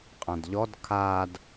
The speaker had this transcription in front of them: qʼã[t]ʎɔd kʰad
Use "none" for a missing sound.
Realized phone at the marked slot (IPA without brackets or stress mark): d